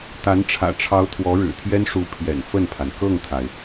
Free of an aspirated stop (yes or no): no